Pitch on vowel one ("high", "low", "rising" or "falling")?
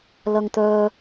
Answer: high